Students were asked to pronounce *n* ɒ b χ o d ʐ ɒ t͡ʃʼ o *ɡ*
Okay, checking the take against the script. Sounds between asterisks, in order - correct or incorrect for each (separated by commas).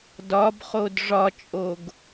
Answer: incorrect, correct